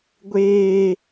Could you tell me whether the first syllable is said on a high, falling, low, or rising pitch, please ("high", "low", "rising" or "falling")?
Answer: high